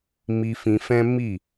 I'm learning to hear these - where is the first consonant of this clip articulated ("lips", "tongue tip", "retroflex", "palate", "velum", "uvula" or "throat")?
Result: lips